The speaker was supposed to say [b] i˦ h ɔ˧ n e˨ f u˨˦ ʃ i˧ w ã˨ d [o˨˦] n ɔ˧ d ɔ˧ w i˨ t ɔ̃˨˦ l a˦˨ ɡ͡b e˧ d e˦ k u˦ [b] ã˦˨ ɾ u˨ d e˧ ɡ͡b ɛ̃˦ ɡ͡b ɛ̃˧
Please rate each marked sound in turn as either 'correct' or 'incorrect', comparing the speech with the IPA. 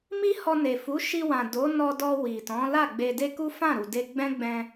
incorrect, correct, incorrect

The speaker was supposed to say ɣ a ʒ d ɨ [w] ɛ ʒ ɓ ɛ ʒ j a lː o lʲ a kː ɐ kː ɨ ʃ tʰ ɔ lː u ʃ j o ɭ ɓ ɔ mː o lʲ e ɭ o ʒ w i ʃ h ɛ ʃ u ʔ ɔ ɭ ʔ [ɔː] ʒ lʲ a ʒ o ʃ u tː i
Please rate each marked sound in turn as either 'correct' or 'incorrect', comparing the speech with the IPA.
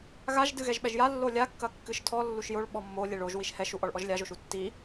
incorrect, incorrect

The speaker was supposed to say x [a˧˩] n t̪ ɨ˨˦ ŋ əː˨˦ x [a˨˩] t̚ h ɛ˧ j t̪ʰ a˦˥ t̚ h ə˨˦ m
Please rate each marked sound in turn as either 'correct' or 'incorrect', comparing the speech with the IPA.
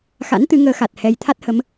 incorrect, correct

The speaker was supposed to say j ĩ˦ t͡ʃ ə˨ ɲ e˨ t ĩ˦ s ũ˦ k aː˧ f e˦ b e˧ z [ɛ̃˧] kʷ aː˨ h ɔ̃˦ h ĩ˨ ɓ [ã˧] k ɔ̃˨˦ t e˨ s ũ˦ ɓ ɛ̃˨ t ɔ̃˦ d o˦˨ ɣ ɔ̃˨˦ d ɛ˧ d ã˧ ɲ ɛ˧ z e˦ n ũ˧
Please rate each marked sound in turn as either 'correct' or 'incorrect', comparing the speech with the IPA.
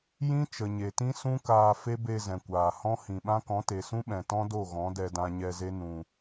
incorrect, incorrect

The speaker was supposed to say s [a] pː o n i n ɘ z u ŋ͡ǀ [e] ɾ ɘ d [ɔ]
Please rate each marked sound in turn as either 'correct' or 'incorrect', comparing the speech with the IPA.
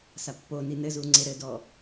correct, correct, correct

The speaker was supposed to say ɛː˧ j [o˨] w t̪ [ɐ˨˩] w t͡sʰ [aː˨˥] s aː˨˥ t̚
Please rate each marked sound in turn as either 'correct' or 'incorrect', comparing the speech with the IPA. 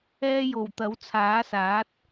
incorrect, incorrect, correct

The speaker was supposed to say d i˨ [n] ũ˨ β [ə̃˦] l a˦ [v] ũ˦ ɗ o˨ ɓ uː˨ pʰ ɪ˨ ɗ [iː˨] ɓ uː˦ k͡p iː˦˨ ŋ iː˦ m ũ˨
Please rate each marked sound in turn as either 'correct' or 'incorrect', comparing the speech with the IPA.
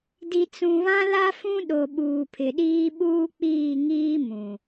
incorrect, incorrect, incorrect, incorrect

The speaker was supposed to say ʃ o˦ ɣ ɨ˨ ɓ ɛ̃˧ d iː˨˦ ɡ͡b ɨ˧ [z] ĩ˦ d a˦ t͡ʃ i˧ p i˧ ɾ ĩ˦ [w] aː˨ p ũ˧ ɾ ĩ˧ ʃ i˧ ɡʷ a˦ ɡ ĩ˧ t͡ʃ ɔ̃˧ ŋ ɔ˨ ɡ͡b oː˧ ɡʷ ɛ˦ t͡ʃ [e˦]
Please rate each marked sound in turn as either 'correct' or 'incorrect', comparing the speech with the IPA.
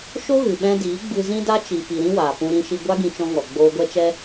correct, correct, incorrect

